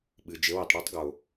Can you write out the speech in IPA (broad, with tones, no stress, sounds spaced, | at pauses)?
ɓ ɨ˩ d͡ʒ ɘ˨˦ w ɨ˩ tˤ ɽ e˥ tˤ ɡ o˩